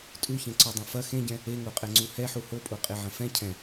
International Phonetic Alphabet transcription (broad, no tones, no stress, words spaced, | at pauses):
tʼuçẽǀɔdˤɛ̃ fɐ xẽɟɛ̃ | eŋoqʼɛŋ͡ǀu hɛħu hopʼoqʼeʕɐ̃ fɛ̃ cʰɛ̃